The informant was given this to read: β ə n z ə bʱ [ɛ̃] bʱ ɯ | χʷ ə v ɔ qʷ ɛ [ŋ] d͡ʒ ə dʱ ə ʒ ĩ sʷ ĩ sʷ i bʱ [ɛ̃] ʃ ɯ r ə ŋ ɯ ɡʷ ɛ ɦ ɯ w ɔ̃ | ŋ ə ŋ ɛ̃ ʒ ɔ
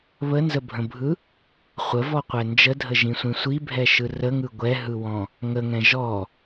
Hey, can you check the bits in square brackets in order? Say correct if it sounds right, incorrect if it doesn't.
incorrect, incorrect, incorrect

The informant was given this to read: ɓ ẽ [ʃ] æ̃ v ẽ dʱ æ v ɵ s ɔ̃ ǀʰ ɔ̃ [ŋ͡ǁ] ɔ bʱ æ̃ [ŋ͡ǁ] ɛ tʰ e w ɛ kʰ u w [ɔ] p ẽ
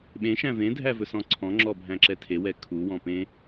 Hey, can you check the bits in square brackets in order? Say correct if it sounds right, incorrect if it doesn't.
correct, correct, incorrect, incorrect

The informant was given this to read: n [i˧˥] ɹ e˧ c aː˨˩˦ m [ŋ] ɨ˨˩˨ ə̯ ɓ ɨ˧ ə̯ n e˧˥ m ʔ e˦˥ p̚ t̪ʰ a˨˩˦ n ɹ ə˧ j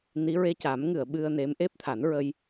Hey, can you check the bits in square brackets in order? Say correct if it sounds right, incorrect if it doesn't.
correct, correct

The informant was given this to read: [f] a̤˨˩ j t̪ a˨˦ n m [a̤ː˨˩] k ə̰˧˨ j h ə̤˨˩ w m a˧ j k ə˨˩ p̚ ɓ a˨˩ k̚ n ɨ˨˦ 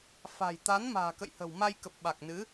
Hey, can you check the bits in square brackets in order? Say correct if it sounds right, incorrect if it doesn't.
correct, correct

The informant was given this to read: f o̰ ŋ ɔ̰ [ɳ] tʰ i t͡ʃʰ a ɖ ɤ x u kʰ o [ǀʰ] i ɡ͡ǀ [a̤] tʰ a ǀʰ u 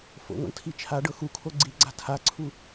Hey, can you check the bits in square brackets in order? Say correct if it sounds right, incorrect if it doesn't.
correct, incorrect, correct

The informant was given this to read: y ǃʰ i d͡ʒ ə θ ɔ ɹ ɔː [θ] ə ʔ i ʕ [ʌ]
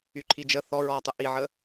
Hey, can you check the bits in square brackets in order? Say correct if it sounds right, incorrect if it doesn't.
incorrect, incorrect

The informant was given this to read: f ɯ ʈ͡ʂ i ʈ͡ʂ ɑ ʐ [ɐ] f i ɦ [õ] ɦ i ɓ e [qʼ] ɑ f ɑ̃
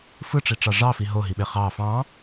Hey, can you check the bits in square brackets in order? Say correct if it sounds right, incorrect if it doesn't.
incorrect, incorrect, incorrect

